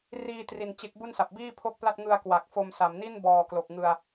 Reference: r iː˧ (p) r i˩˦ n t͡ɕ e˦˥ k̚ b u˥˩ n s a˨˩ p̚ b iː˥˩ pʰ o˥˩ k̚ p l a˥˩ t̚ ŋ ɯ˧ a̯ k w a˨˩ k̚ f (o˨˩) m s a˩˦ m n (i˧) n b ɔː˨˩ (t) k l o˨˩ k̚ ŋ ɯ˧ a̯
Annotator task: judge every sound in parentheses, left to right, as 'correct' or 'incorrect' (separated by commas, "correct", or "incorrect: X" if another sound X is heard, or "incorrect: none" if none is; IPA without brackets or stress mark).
incorrect: t, incorrect: o˧, incorrect: i˥˩, incorrect: none